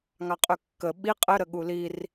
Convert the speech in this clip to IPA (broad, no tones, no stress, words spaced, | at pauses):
ŋɑqʼøkːə ɓi qʼəɾəɠu lir